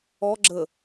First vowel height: mid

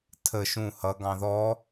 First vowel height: mid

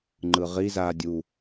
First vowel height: high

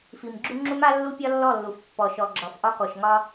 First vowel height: high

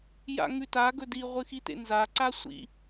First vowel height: low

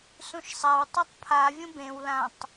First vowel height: high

